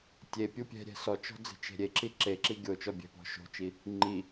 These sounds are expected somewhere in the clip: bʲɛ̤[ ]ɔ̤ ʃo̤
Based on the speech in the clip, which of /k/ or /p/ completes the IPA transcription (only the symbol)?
p